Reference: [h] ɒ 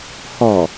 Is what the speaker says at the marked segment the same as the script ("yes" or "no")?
yes